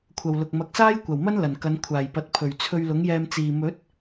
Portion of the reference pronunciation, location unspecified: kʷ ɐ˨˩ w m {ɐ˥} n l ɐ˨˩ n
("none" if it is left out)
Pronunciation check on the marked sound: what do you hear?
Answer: ɐ˥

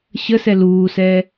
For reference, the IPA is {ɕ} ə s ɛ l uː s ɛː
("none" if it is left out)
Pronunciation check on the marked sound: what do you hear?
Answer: ɕ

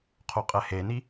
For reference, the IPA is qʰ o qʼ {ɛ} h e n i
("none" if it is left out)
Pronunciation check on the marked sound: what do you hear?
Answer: ɛ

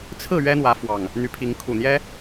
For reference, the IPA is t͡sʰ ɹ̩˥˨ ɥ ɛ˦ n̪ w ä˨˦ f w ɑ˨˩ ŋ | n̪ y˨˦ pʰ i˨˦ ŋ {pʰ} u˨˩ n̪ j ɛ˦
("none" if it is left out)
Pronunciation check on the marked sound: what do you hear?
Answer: kʰ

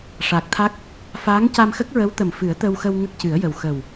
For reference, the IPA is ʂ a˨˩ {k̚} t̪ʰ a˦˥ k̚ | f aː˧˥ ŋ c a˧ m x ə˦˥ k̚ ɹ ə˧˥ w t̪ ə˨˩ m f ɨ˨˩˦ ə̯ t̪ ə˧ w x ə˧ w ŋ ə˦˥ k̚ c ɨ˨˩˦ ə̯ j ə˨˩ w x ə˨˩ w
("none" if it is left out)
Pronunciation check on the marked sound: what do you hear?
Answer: k̚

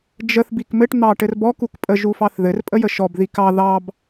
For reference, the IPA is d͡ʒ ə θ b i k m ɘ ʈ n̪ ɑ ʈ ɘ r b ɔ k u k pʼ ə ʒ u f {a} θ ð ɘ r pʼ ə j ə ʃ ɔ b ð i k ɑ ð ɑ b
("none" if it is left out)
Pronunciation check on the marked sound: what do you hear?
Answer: ɑ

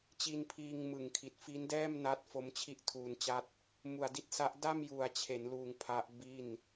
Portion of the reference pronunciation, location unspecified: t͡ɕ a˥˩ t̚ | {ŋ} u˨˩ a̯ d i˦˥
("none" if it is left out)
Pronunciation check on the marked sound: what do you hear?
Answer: m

